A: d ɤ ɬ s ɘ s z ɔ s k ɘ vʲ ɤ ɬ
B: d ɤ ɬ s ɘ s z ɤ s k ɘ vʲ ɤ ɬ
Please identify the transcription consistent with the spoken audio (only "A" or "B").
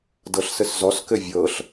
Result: A